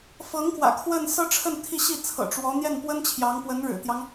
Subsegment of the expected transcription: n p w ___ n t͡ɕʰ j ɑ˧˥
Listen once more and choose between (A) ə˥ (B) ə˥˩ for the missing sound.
A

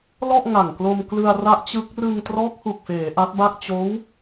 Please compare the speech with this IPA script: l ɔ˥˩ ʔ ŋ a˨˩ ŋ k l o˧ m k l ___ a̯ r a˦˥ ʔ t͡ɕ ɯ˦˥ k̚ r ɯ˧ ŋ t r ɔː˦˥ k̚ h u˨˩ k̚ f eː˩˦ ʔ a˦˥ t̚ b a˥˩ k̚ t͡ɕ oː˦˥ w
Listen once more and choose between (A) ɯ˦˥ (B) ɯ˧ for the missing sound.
B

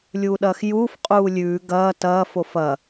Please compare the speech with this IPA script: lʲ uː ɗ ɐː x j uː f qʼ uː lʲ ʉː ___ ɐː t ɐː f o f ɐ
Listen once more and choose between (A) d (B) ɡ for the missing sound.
B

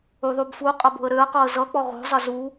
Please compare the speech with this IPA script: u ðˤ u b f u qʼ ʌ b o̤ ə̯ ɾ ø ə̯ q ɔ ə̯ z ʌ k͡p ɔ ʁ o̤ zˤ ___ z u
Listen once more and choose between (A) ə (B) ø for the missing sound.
A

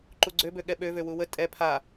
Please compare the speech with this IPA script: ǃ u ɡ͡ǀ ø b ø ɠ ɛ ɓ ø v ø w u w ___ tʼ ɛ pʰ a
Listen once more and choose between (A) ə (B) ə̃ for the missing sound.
A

